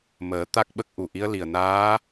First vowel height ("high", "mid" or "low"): mid